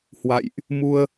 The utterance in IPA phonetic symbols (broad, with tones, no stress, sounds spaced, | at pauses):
h w a̰˧˨ j ʔ | m u˧ ə̯